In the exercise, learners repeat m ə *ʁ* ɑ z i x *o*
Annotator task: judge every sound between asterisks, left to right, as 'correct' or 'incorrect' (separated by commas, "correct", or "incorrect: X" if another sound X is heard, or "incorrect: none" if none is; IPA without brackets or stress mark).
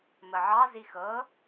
incorrect: ʕ, incorrect: ɤ